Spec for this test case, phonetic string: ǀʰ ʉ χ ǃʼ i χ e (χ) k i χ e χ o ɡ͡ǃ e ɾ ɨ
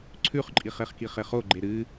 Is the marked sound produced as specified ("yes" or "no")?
yes